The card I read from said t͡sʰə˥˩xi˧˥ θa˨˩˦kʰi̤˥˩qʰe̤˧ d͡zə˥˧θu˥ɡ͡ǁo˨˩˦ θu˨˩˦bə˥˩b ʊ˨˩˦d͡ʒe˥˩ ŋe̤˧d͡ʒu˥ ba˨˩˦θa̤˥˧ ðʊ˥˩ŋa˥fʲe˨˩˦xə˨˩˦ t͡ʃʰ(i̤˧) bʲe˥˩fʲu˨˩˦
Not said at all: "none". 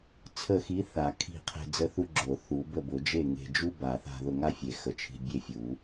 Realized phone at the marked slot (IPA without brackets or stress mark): i̤˧